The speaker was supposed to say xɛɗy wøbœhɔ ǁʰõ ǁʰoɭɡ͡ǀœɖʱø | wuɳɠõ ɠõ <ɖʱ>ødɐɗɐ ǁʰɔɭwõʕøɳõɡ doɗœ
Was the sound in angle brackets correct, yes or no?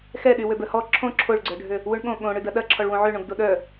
no